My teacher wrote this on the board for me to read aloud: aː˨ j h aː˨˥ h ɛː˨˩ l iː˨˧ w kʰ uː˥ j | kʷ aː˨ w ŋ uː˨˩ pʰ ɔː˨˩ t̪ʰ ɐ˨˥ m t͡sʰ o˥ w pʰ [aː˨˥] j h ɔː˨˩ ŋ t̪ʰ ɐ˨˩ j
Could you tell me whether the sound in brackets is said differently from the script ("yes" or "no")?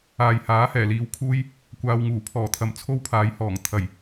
no